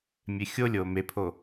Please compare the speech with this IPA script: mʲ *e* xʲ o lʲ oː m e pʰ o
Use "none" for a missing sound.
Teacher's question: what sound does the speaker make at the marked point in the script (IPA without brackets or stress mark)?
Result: e